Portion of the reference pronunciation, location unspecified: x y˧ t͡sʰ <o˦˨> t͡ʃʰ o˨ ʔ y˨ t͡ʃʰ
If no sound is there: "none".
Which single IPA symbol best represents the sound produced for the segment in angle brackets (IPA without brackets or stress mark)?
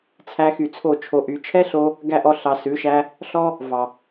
o˦˨